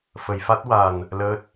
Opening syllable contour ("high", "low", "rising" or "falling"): low